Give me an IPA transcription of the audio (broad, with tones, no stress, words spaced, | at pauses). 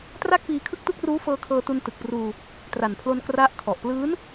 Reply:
tra˥˩k̚piː˧kʰɯ˥˩k̚tu˥˩k̚ ruː˦˥fɤː˧ kʰɤː˧tu˧ntɯ˨˩k̚ pruː˧ | tra˨˩npʰlo˧n kra˦˥ʔ kʰɔ˨˩ʔ plɯː˦˥n